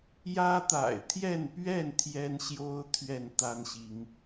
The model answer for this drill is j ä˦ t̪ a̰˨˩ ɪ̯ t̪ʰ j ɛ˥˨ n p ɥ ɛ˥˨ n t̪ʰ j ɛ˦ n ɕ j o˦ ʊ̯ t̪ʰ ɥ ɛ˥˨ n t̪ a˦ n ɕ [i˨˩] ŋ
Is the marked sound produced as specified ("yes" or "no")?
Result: no